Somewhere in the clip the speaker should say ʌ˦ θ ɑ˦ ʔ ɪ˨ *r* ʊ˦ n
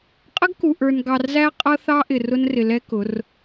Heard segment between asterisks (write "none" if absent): r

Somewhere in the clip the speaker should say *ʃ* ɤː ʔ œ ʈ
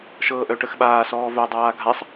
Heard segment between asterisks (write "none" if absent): ʃ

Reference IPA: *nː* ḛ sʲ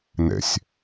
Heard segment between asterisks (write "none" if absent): n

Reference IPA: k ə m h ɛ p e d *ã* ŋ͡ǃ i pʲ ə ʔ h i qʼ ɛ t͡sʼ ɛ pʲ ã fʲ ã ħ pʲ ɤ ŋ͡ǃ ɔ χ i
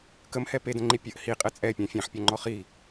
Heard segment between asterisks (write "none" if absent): ə̃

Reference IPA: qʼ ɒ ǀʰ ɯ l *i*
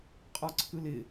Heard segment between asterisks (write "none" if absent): ɪ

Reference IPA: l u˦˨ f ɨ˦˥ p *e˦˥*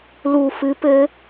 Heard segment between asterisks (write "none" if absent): ɘ˦˥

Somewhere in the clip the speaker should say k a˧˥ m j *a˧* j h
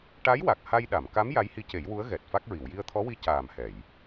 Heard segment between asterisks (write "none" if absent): a˧˥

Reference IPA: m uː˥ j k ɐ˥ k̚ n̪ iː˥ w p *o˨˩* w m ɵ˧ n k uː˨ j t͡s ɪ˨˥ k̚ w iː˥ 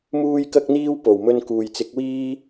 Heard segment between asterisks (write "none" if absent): o˨˩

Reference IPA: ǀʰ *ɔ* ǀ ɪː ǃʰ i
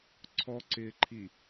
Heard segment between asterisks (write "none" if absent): ɔ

